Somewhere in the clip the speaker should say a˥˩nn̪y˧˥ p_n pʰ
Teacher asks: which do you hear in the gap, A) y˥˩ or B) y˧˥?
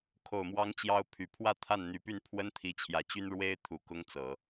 A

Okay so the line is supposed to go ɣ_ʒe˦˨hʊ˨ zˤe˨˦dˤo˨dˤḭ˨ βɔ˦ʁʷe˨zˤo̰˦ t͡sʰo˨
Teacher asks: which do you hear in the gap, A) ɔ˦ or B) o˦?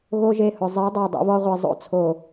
B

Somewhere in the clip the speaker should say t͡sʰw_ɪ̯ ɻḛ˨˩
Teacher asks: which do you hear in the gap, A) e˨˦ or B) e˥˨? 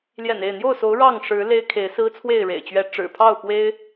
B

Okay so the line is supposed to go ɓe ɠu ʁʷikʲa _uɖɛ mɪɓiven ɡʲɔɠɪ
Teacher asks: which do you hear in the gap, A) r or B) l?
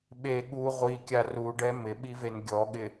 A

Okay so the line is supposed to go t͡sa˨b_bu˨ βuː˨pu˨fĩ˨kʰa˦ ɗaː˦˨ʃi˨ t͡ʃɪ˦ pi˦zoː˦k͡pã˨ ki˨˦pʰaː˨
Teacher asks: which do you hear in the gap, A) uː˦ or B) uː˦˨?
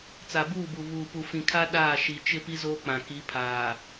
B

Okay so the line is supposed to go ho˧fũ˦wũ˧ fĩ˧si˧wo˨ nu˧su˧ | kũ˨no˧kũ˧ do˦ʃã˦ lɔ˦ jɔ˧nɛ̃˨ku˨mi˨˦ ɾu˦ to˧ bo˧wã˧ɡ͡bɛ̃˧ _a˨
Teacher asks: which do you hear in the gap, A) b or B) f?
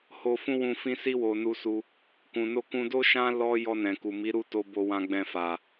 B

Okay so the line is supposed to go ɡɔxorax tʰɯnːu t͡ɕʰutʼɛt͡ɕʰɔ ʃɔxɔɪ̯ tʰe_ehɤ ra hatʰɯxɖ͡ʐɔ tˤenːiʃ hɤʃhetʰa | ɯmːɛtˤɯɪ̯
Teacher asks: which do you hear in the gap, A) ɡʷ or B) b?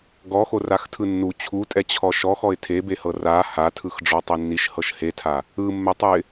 B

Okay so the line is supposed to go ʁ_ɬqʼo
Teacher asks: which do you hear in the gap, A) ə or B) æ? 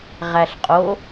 B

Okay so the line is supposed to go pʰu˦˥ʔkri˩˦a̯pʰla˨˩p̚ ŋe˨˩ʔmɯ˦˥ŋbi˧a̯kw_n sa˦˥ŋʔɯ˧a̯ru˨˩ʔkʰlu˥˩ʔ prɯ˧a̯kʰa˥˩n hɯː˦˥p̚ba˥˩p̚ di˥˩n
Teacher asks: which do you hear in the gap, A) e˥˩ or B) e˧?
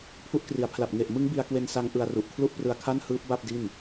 B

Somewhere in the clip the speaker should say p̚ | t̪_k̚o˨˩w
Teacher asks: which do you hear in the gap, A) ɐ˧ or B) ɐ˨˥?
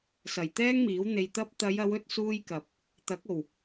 B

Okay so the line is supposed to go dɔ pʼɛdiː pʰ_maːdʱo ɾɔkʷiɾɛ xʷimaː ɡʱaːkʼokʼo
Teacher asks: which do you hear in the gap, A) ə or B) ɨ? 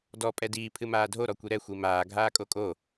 B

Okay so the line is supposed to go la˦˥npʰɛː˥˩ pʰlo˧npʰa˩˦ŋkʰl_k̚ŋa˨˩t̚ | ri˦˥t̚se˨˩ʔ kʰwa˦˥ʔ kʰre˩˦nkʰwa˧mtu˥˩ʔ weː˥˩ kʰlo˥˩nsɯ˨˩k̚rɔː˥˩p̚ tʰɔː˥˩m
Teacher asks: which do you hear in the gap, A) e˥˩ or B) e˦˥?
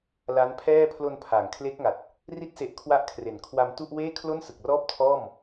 B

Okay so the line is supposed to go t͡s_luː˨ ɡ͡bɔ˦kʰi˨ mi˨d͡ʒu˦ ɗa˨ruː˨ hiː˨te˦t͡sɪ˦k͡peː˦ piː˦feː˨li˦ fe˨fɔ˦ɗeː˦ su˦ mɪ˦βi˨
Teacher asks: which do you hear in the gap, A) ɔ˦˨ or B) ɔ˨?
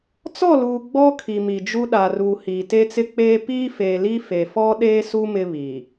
A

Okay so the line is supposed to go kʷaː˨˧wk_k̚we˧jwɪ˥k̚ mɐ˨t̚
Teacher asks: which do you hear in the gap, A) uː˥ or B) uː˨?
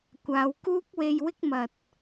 A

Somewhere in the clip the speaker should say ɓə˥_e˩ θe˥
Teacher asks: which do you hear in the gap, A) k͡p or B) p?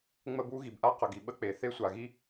A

